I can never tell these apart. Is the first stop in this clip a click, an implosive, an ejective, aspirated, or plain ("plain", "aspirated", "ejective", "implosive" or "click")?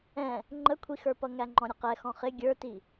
click